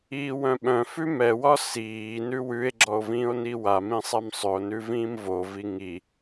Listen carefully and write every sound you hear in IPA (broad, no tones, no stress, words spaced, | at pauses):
iːwœ̃ɓœ̃fʉ mɛwɒ siː nʉwʉe̯ɡ͡ǁɔo̯ vĩːo̯niwamĩ sˤɛmsˤʏo̯nʉ vĩːmvovi ŋi